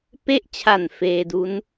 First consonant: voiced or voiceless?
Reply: voiceless